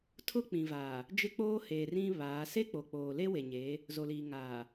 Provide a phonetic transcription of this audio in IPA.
tʰʊ˦k͡pĩ˨vaː˨ | d͡ʒɪ˦k͡poː˦heː˨r ĩ˦ βaː˨˦ se˦ k͡po˨k͡poː˨ le˦we˨ɲeː˨˦ | zo˨liː˨ ŋaː˨

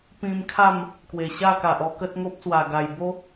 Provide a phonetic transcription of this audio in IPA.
pĩ˧mkʰa˥˧m | kwe˨˩ ɕa˥˧ka˨ʔɔ˧ kə˦t̚ŋo˦p̚swa˨˩ ɡa˨˩j bo˦

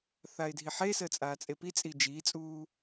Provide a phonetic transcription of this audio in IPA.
θaɪ̯dʱiħesəː t͡sʼaːt͡sʼepit͡sʼi d͡ʒiːt͡sʼuː

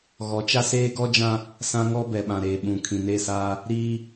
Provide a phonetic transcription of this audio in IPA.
ɣɔ˨˦t͡ʃa˦ seː˦ɡɔ˦d͡ʒã˦ | sã˦ŋɔ˦ bɛ˨ɓã˨ɾeː˨ ɓũ˨ kʰĩ˨ne˦˨saː˦ | ɾiː˦

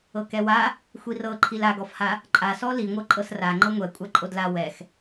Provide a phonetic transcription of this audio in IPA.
ɤkɛwa | xʷirɤǃʰil aɡɔfha | ǃʼasɔ liŋʷɤ ǃʼɤsra ŋ͡ǃɤŋʷɛ kʷʼaǃʼodla wɛx

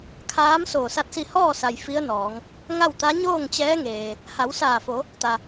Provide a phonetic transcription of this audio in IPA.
kʰaː˧˥m soː˧˩sa˥˨t̚si˥˨ hɔː˥˨sa˩j fi˧˥ə̯nɔː˩˧ŋ | ŋa˥˨wt̪a˧˥ ɲoː˥˨ŋt͡ɕɛː˧˥ ŋeː˩ | ha˩˧w saː˧˩fo˩˧ | t̪a˩

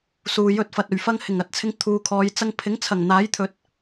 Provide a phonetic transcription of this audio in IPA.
suː˨jɵ˧t̚fɐ˨t̚ ɵ˨˩ɥfɐ˧ŋ hɪ˨˩ŋɐ˨˥t̚t͡sʰɪ˧ŋ t̪ʰuː˨kʰɔː˨˧j t͡sɐ˧ŋpʰɪ˨˥ŋ t͡sʰɐ˨˩ŋn̪aː˨˥j t̪ʰɵ˨t̚

